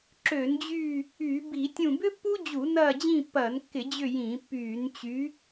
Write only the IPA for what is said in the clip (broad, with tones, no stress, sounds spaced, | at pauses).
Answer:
ǁ ø˧˩˧ n d͡ʑ yː˦˨ | yː˧˩˧ b i˧˩˧ tʲ ũ˦˨ b ʏ˥ pː u˥ d͡ʑ u˧˩˧ n ɐː˦˨ d͡ʑ ĩ˦˨ pː ɐː˧˩˧ n kː ɪ˧˩˧ d͡ʑ ʏ˦˨ j ĩ˧˩˧ pː yː˧˩˧ n t͡ɕ y˨˥